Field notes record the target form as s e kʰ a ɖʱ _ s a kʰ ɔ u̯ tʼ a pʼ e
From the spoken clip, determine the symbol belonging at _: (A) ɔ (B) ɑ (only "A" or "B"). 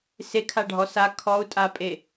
A